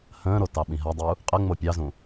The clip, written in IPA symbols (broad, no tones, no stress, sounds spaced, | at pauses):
h ə̃ː ɾ o t ɑ ɓ ĩ ɦ a dˤ u | qʼ ə ŋ͡m o pʲ ɑ z ũ